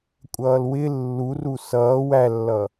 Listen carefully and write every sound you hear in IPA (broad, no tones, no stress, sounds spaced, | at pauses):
kʷʼ ʌː l w ɪ lː u r u s ʌː w æ lː ʌ